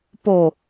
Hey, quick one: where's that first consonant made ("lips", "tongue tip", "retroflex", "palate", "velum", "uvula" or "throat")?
lips